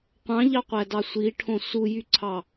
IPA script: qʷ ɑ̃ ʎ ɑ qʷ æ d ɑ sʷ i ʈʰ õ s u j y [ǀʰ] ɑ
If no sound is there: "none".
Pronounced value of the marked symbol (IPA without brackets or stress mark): ǀʰ